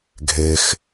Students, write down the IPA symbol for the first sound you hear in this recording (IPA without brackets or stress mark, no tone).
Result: ɡʱ